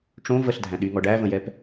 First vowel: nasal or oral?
nasal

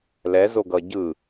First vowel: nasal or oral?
oral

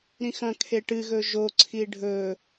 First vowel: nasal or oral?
nasal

